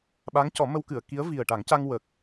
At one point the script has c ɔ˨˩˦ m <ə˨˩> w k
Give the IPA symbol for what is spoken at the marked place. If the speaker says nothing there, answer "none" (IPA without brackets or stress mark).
ə˧